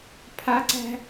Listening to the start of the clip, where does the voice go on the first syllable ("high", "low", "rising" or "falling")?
high